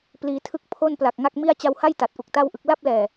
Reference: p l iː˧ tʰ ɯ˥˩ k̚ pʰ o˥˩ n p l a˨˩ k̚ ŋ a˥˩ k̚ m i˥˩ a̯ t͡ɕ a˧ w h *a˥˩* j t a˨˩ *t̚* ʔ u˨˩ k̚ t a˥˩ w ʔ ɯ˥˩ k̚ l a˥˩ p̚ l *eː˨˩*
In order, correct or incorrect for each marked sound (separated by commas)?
correct, correct, incorrect